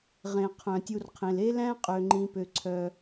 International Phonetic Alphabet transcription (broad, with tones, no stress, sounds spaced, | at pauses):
ʁ ẽ˩ qʰ œ̃˩ tʲ u˨ r qʰ ẽ˩ l e˦ l æ̃˦ qʼ ø˨ ŋ͡ǃ ĩ˨ p ø˨ ǀʰ œ˨